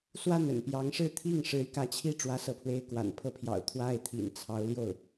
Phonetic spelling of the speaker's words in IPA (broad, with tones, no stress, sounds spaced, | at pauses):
s w a˥˩ n ə̰˨˩ n p j ɑ˧˥ ŋ ʂ ɻ̩˥˧ t̪ʰ i˥˩ ŋ ʂ ɻ̩˧˥ y˧ k ä˧˥ t͡ɕʰ i˥˩ ʈ͡ʂ w ä˥ s ɤ˥˩ pʰ w e˥ ɪ̯ k w a̰˨˩ n pʰ ɤ˥ pʰ j ɑ̰˨˩ ʊ̯ t̪ʰ w a˥˩ ɪ̯ t̪ʰ ḭ˨˩ n t͡sʰ ɑ˧˥ ʊ̯ l j o˥˩ ʊ̯